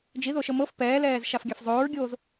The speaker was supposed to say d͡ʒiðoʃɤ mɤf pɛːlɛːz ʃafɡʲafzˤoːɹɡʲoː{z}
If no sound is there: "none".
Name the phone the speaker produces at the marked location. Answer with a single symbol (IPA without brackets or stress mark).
z